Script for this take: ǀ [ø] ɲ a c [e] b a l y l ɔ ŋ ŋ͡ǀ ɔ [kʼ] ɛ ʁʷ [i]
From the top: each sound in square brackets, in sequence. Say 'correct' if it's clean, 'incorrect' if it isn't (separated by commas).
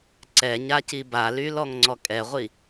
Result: incorrect, incorrect, correct, correct